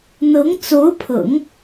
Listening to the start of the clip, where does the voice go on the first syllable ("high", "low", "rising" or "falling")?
rising